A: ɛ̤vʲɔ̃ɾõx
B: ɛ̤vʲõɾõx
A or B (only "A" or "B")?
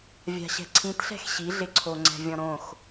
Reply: A